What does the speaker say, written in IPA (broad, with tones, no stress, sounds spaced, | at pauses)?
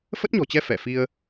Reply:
f ə˦˥ t̚ ɲ ɔ̤˨˩ t͡ɕ ɛ˧ f ɛ˧˩ f i˧ ə̯